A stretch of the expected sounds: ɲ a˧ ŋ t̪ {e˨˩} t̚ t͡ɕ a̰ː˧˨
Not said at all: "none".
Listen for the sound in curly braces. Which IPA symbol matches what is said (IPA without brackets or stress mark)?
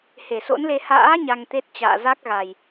e˦˥